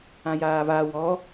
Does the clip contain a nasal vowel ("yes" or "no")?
yes